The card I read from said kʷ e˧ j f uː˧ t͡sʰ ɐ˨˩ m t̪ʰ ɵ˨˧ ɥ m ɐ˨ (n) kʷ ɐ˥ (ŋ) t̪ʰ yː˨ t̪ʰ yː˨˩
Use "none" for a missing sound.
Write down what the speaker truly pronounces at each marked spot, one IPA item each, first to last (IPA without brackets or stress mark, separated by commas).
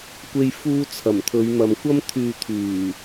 m, m